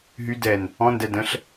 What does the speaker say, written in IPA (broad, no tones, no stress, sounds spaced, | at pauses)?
ɦ y d ɛ n | ɔ̃ n d ɛ d ə̃ ɬ